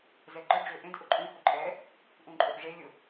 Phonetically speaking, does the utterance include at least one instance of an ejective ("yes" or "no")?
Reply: yes